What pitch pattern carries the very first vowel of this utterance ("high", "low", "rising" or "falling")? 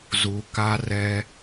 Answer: low